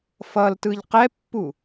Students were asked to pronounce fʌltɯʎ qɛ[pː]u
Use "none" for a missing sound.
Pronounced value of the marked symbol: pː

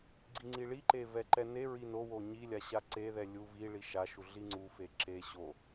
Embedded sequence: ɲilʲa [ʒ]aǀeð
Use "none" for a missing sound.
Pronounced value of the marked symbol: ɕ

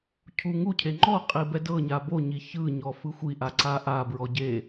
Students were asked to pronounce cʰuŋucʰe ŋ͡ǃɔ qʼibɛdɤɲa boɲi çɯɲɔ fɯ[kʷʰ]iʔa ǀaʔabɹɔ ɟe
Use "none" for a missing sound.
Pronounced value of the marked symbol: xʷ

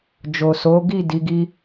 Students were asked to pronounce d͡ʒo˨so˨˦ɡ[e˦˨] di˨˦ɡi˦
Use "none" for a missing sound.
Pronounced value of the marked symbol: i˦˨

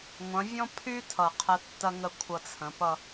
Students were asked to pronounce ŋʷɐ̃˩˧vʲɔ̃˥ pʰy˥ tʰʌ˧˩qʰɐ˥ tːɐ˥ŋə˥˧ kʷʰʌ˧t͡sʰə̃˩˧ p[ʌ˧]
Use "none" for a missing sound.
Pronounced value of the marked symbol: ʌ˥˧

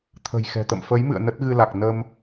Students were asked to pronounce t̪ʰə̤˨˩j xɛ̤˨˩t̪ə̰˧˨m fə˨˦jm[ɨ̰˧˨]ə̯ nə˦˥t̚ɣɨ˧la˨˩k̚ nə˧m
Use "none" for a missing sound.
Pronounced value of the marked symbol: ɨ̰˧˨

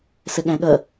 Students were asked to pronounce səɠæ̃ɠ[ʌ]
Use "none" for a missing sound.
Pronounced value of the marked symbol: ʌ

